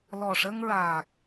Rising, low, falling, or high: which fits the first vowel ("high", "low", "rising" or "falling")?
low